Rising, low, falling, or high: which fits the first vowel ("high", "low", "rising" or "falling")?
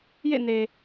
falling